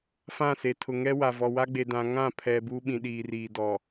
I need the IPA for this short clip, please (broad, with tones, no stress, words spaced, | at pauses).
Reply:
fã˦˨se˨tʰʊ˨ŋɛ˦ wa˨vɔ˨ wa˦ɡ͡be˨dã˨ ŋã˦˨pʰɛ˨ bu˦ ɓĩ˨ɗiː˨riː˨ dɔ˨